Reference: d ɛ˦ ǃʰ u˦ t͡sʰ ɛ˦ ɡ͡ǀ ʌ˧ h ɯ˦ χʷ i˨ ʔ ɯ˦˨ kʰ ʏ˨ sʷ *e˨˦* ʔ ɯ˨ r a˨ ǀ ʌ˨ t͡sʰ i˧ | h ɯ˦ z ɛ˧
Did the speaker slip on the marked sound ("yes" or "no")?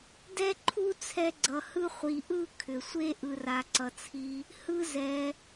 yes